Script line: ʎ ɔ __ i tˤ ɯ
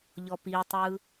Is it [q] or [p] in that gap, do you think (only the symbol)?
p